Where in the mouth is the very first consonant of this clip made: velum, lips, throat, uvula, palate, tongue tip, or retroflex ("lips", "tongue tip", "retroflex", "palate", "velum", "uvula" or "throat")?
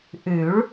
throat